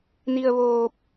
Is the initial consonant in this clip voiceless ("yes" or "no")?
no